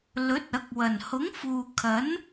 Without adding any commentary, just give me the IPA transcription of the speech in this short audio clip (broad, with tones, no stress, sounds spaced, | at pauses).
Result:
l ɵ˨˥ t̚ ɐ˨˥ k̚ w ɐ˨˩ n h ʊ˨˥ ŋ f uː˨ kʰ ɐ˨˥ n